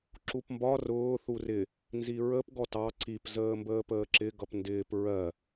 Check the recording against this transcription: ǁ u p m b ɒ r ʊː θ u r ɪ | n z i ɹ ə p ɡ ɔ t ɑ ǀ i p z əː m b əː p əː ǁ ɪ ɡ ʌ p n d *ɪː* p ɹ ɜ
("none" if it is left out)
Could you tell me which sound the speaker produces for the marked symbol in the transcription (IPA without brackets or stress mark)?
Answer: ɪː